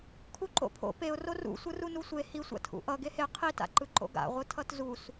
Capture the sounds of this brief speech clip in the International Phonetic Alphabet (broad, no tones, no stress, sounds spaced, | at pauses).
kʰ u ǃ o̰ pʰ o̰ p e ʊ̯ r o r ṵ sʷ ɯ r u n u sʷ e h i sʷ a̰ tʰ ṵ ʔ ʌ ɡ e h e qʰ i t a̰ ǃ ɯ ǃ o̰ ɡ a̰ ʁʷ ɯ tʰ ʌ t z u s